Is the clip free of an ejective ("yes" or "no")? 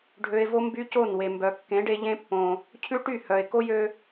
yes